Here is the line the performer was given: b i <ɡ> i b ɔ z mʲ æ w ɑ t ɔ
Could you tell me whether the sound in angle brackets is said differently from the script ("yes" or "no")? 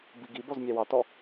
no